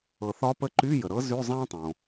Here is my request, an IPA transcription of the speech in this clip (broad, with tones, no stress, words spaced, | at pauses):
ɤ˩θɒ˧˥pə˧˥ ǃy˧˥˧jə˩ɾɤ˧˥ zy˧˥˧zˤã˥tˤõ˩